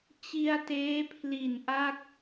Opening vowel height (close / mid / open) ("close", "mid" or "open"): close